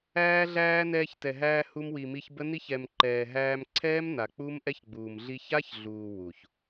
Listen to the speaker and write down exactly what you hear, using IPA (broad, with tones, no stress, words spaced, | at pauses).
æː˧ɮæː˧ nɛː˧çtɛ˨ɦæː˧ hu˧mwi˨mi˧ç bə˦ni˦ç ɛ˨mǃɛː˨ɦæː˧m ǀʰɛː˦m na˨k͡pu˦m ʔɛ˦çɡ͡buː˨m ɮi˧ça˦çɮuː˨ wu˨ç